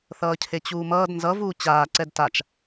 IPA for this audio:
θʌːcʰet͡ɕuːmʌːd nzʌvuː t͡ɕaːǀɛd tat͡ʃ

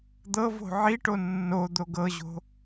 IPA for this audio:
d̪ɤvo̤ ʕiʈo nːo d̪oɡɤʑo̤

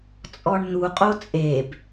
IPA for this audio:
t͡sʼɔɳn̪uqʼo t͡sʼeb

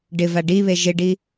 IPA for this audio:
ɖɪva ɖiβe ʒɪɖi

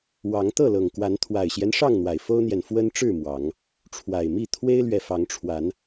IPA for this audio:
wɑ˨˦ŋt̪ɤ˥˨lɤ˨˩ŋkwa˨˦n t̪ʰwa˨˩ɪ̯ɕjɛ˦n ʂɑ˥˨ŋn̪wa˨˩ɪ̯fo˦ʊ̯n̪jɛ˨n fwə˦nʈ͡ʂɻ̩˥˨ mwɑ˨˦ŋ | ʈ͡ʂʰwa˨˩ɪ̯mi˥˨ t̪ʰwe˦ɪ̯lɥɛ˨fɑ˨˦ŋʈ͡ʂʰwa˨˦n

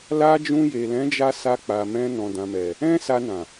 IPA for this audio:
la˧ d͡ʒũ˧je˨lɛ̃˨˦d͡ʒa˧ sa˧k͡pa˨mɛ̃˧ nɔ̃˨dã˨mɛ˨ | ɛ̃˦sa˧nã˨

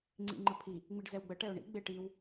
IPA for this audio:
ŋ͡ǀḭŋ͡ǃəpʰi | ŋ͡miɖzɛwɡ͡bə ʈɛʊ̯ɳḭ ɡ͡beʈ iw

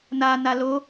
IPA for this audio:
na nalo

